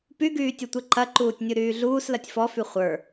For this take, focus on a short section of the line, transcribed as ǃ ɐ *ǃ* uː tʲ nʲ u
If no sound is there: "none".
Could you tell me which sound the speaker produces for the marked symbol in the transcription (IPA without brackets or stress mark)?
ǃ